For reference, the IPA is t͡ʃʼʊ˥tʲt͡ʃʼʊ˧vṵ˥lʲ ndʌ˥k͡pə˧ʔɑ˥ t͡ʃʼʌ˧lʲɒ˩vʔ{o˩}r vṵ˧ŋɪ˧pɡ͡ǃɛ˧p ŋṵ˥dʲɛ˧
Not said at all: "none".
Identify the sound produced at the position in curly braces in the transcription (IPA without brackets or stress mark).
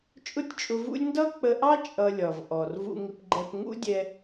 ɔ˩